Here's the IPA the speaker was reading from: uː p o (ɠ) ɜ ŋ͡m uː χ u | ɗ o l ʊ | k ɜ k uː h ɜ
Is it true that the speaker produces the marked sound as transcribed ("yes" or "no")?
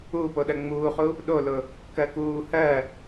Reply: no